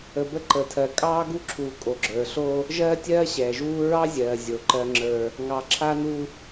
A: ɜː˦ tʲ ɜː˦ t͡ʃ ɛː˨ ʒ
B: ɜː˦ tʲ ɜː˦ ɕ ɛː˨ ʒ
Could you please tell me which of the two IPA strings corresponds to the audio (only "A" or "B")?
B